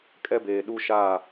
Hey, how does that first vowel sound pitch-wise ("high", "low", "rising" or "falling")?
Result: high